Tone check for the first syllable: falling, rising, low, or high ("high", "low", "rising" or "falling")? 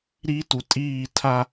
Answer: high